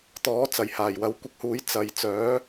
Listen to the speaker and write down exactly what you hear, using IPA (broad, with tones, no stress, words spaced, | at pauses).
t̪ɔː˨˥t͡sɐ˨˩j haː˨˩jwɐ˨˥wkʷɪ˧k̚huː˨˥j t͡sɐ˨j t͡sœː˨˥